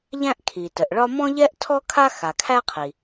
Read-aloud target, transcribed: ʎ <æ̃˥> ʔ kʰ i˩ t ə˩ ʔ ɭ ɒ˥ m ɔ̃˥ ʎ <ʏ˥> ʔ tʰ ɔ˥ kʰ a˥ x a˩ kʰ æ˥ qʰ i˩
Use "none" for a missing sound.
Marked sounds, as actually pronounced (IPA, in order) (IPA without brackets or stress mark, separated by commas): æ̃˥, ɛ˥